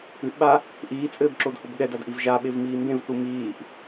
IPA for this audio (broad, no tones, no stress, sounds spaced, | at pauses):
ɨ ʔ ɓ a | ʔ iː t͡sʼ ɘː b ǁ o d h o b ɠ ɛ d a d ʔ i v ʒ a ɓ e v m iː m b ẽ v θ u m iː ʔ